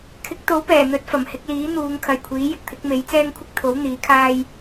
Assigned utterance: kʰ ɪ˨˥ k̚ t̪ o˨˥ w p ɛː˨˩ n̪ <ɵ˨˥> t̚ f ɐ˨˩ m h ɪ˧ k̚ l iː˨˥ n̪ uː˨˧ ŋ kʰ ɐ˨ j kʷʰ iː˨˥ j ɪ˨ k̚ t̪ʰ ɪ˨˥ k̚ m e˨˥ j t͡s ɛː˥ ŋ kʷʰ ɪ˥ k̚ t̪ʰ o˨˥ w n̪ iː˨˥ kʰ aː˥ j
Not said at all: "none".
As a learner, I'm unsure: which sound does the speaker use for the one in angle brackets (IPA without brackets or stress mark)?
ɵ˨˥